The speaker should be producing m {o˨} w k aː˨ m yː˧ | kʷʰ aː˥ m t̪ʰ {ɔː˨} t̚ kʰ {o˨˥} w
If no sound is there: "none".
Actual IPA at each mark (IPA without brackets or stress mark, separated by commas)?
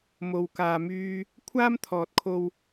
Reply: o˨, ɔː˨, o˧